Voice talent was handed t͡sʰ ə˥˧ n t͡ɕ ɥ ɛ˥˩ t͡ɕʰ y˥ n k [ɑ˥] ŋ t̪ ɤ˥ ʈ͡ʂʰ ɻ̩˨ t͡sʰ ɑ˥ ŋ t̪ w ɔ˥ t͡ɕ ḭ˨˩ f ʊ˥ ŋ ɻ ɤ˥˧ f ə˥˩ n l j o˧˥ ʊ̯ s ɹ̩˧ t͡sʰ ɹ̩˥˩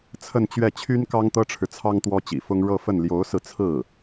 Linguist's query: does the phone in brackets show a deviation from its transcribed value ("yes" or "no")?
no